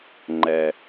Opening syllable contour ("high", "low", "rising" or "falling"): low